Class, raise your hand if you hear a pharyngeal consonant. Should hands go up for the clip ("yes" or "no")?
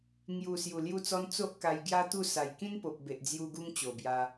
no